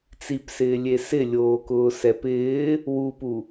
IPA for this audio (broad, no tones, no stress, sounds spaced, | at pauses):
t͡s i p s ɪː lʲ e s ɪ lʲ oː k ʊː s ɛ p ɪː | w u p u